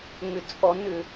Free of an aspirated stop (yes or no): yes